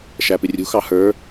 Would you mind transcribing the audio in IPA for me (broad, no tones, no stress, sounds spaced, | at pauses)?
ʃ æ p ɪ rʲ ṳ x ɑ h ə˞